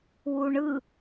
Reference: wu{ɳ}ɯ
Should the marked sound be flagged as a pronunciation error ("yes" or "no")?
no